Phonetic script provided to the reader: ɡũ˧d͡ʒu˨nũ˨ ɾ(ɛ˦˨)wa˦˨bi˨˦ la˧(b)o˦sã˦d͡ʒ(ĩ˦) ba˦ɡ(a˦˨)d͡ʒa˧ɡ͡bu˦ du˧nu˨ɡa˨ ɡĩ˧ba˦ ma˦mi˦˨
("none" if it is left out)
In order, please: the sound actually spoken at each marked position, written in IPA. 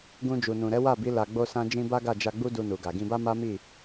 ɛ˨˦, ɡ͡b, ĩ˦, a˦˨

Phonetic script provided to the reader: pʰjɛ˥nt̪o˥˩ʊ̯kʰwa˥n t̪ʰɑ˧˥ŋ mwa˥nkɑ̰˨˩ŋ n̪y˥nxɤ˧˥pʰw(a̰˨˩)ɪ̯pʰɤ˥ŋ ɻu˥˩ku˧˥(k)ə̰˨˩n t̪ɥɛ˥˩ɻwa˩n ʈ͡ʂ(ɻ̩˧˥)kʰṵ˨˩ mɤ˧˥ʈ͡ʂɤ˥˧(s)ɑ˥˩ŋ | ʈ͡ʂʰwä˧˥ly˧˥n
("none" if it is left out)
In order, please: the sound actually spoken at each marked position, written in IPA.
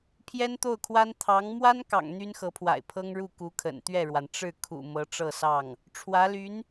a̰˨˩, kʰ, ɻ̩˥˩, s

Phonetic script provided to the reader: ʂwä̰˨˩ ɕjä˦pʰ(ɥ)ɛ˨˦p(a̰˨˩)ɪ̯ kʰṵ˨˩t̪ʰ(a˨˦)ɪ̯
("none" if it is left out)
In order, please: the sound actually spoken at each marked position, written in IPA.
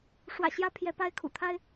j, a˥˨, a˦

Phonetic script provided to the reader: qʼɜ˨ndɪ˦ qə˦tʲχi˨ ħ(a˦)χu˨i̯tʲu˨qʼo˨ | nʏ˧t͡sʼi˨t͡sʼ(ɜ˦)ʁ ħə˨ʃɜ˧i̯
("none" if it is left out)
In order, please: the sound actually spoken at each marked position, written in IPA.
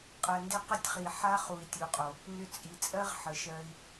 a˦, ɜ˦

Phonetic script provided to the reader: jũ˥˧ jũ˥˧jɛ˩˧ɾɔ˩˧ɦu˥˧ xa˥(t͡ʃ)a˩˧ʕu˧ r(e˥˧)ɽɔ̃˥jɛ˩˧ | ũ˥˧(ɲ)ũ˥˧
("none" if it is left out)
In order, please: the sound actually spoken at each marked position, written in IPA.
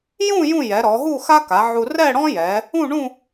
k, ɛ˥˧, ɳ

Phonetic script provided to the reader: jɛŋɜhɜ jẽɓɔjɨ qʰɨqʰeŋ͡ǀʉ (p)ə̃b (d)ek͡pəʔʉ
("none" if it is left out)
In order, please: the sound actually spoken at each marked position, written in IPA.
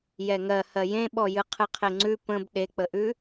p, ɗ

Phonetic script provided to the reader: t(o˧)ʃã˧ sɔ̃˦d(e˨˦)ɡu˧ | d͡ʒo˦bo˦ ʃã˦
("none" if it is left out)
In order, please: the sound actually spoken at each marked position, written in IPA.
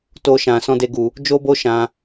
o˦, e˦

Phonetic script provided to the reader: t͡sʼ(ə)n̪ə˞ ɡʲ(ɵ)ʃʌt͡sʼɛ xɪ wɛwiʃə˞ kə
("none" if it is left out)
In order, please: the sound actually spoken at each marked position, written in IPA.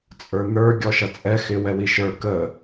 ə˞, ɔ

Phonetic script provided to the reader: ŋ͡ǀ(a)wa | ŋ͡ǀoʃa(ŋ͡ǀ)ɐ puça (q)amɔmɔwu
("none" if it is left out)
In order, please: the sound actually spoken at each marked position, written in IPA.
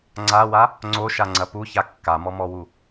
a, ŋ͡ǀ, kː

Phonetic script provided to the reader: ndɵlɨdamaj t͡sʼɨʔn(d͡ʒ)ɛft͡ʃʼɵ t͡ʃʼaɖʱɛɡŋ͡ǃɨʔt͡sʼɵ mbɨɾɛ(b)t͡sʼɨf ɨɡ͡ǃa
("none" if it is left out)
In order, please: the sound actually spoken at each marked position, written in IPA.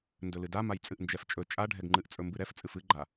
d͡ʒ, f

